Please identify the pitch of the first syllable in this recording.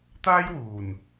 high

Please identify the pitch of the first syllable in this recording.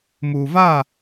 low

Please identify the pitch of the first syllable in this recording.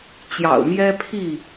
low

